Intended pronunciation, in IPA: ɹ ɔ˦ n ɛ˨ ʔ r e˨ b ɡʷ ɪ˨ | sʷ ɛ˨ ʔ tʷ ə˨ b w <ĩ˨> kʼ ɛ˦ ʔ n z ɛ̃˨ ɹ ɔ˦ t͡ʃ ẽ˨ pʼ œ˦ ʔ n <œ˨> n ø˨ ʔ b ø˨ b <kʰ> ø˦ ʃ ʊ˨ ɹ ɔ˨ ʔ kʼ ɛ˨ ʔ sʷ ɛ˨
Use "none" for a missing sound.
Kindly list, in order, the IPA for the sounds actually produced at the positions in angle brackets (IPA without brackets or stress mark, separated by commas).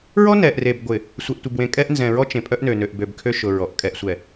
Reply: ẽ˨, ø˨, kʰ